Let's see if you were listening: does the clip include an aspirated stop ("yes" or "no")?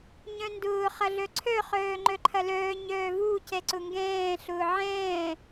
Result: yes